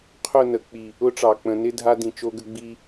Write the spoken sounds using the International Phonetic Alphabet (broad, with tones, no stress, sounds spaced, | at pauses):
qʰ ʊ˦˨ n ə˨ k͡p i˨ | ʊ˦ ʈ͡ʂ ɑ˨ k͡p ə̃˨˦ n ɪ˦ dʱ a˦ d ĩ˨ t͡ʃ o˦ ɡ ə˦ ɡ͡b i˦